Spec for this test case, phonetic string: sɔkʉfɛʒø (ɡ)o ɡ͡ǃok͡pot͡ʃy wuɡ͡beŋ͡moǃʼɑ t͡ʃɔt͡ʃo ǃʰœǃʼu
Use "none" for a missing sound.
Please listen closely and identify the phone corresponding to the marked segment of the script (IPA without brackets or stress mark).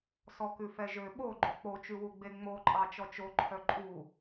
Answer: ɓ